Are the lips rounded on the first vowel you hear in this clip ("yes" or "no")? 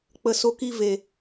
no